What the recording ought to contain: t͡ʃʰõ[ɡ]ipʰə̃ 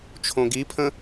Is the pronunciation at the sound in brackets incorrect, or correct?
correct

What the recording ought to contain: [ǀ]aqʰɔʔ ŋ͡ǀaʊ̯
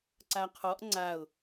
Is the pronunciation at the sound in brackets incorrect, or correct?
correct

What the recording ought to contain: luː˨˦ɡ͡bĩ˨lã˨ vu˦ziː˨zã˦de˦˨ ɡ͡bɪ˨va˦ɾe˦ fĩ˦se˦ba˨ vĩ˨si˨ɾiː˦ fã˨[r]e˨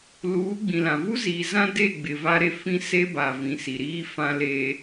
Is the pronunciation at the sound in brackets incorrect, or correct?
incorrect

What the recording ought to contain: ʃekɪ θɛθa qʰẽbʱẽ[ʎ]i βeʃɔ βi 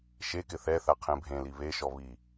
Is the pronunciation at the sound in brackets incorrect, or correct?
incorrect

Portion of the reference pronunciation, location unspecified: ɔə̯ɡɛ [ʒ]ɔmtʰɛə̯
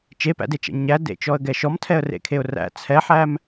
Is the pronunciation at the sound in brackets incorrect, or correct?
incorrect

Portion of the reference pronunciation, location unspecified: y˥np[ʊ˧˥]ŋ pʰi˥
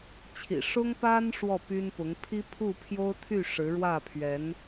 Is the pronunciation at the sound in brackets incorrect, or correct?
correct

